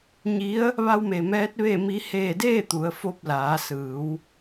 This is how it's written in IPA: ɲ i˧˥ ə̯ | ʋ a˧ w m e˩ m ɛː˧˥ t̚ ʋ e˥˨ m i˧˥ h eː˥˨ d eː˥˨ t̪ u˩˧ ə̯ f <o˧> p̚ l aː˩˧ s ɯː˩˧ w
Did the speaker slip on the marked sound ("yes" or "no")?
no